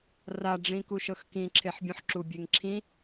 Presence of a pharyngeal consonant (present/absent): present